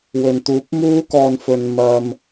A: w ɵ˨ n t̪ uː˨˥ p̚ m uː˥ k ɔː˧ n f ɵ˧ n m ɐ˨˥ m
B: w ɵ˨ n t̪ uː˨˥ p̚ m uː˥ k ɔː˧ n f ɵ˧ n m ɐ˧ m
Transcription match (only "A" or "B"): B